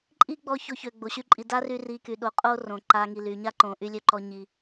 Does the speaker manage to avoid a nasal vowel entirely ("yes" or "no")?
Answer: no